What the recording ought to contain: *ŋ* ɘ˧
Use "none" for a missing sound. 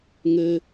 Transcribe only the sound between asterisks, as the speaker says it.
ŋ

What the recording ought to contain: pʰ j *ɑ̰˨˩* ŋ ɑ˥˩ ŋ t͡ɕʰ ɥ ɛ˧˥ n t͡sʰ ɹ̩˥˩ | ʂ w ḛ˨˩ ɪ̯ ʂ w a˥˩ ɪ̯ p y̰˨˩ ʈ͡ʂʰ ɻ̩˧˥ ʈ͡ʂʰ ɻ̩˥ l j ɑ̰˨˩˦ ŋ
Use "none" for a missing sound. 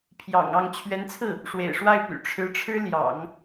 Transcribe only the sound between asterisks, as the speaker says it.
ɑ̰˨˩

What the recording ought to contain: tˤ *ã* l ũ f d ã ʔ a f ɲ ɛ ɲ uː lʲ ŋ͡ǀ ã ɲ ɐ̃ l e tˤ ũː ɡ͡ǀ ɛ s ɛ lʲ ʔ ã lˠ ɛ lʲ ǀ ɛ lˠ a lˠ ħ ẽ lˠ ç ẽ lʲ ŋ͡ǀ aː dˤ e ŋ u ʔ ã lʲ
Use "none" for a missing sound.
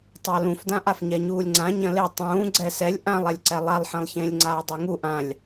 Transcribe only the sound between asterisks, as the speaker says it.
a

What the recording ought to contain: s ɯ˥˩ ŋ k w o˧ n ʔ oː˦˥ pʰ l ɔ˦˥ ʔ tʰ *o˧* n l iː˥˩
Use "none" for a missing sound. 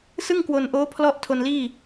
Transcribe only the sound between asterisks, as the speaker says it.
o˧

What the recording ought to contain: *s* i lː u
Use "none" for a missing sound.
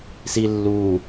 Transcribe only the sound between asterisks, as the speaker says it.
s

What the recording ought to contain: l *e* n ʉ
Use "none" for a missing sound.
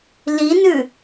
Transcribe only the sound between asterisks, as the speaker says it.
i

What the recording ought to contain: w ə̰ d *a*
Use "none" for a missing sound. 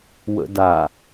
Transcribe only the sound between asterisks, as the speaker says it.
a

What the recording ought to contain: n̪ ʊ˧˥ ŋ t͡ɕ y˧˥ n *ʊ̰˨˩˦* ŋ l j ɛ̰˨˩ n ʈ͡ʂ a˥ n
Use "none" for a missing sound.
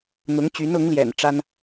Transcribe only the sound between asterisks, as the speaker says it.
ʊ˧˥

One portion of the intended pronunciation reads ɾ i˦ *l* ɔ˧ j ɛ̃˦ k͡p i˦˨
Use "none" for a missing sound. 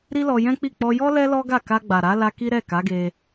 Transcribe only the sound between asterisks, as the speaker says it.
l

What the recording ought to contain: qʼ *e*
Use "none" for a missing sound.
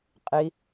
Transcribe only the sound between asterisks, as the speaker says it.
i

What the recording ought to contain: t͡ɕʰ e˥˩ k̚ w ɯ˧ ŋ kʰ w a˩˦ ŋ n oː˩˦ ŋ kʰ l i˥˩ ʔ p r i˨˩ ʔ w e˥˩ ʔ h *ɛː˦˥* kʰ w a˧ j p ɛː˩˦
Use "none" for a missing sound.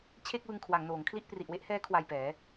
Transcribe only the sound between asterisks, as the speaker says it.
ɛː˦˥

